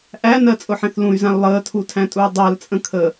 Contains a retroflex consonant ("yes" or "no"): no